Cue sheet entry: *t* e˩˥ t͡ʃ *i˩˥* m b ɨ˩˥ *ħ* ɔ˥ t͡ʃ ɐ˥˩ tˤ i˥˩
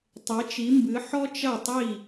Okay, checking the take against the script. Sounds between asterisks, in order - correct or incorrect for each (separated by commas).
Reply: incorrect, correct, correct